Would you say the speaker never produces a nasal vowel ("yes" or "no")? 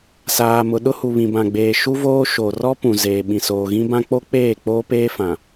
no